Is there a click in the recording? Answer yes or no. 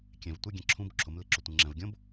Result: yes